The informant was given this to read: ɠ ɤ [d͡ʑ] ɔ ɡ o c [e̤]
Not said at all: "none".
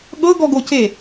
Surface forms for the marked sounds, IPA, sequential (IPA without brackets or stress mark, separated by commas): ɡ, e